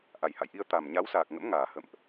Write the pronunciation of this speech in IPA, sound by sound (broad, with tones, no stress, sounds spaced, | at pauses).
ʔ a˨˩ j h a̰˧˨ j ʔ i˧ ə̯ t̪ a˨˩ m ɲ a˨˦ w s aː˨˩ k̚ ŋ ə̰˧˥ m ŋ aː˨˩ h ə̰˧˨ m ʔ